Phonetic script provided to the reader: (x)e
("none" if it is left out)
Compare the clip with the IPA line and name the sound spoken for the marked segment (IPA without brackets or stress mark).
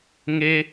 ŋ